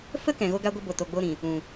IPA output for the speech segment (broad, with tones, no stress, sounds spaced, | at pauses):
f ə˦ k ɛ̃˨ ɣ o˦ ɡ a˦ ɡʷ ə˦ b o˨ t o˧ ɡ͡b o˦ ɾ ĩ˨ | ũ˨